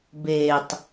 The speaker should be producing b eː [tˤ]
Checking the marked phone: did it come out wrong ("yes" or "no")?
no